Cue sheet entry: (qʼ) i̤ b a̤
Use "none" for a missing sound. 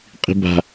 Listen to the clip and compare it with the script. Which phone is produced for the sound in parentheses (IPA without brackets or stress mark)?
qʼ